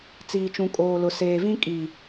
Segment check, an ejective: present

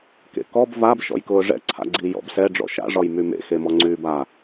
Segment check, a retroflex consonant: present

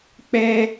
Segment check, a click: absent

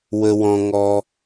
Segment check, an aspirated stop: absent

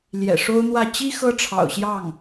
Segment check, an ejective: absent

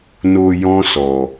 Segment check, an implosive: absent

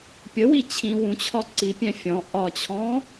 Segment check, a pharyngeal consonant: absent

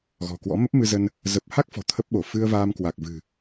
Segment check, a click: absent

